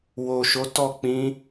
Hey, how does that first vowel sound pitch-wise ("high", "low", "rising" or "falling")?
low